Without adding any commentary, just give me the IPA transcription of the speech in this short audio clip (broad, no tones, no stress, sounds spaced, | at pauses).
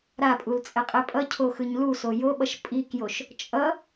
ɾ a pʼ u l t͡sʼ ɛ qʼ e pʼ ʌ cʰ o x ɯ ɲ l u s o j o ɓ ʌ ʃ pʼ i k j o ʃ | t͡ʃʼ ʌ